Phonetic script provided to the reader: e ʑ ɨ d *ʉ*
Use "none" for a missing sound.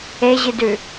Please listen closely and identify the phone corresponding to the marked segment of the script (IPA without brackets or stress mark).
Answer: ʉ